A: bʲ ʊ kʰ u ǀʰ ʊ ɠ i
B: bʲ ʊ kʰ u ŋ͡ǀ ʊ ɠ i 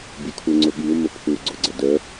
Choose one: B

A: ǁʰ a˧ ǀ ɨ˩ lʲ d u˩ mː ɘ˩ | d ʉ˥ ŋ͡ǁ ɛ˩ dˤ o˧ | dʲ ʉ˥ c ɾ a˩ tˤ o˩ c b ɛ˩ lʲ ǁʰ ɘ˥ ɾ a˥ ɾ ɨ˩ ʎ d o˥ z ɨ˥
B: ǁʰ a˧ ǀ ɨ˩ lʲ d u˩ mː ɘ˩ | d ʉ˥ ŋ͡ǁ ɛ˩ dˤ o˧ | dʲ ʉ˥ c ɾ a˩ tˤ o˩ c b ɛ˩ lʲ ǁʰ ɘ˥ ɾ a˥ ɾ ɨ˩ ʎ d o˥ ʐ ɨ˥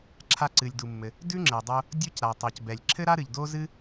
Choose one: A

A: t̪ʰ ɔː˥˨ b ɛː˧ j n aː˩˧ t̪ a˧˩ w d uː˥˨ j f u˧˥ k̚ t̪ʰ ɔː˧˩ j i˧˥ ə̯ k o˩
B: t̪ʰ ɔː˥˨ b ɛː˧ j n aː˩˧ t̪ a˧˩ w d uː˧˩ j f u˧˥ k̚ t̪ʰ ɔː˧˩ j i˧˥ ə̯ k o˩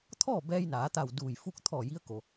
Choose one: B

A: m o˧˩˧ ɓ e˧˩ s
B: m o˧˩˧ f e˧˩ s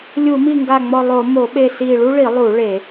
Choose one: A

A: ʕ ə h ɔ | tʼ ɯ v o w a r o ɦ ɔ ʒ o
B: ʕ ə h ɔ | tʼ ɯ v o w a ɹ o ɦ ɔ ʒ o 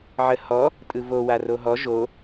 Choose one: A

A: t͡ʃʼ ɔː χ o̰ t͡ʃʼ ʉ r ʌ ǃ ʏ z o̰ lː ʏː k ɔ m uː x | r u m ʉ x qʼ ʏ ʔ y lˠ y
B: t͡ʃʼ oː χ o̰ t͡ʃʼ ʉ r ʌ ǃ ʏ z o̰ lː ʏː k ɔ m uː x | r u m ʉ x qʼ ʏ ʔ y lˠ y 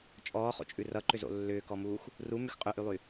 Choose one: A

